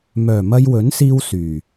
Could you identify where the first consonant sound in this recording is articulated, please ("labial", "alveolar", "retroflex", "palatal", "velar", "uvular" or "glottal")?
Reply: labial